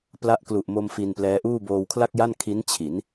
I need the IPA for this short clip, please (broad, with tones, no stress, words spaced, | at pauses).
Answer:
pla˦˥ʔklu˨˩ʔmo˧m fi˧nplɛː˦˥ʔuː˥˩ boː˧wkʰla˥˩k̚ja˥˩n kʰi˦˥nt͡ɕʰi˩˦n